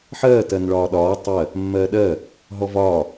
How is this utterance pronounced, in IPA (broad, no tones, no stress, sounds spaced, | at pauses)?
ħ ɜː t ɜ n ɭ ɒː ɗ ɒː tˤ ɜ | mː ɜː ɗ ɜ | ɦ ɔ v ɒː